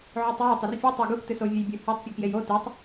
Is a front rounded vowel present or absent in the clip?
absent